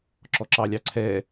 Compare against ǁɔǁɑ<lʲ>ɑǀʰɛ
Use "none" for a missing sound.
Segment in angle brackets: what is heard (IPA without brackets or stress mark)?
lʲ